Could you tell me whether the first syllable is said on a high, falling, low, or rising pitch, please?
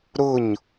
falling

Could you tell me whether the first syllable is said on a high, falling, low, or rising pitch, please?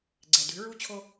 low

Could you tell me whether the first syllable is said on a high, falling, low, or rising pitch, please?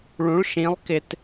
rising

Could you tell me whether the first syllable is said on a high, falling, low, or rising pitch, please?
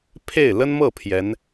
falling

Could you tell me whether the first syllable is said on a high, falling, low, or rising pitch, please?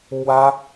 high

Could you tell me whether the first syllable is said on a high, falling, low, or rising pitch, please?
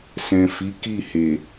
low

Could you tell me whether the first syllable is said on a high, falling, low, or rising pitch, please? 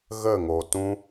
falling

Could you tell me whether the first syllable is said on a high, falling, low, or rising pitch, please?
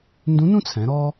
rising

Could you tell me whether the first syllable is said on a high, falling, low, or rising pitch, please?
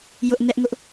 high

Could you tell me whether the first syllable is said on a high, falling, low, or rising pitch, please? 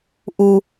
low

